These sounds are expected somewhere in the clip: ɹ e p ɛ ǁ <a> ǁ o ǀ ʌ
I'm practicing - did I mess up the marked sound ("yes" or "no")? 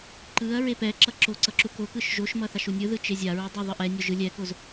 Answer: yes